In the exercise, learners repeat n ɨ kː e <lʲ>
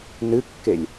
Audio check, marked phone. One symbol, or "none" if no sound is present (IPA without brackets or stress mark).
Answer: lʲ